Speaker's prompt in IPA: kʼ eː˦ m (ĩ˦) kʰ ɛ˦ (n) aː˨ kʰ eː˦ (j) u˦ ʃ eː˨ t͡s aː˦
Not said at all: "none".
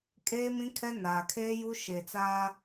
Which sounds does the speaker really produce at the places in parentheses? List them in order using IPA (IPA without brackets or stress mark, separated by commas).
ĩ˦, n, j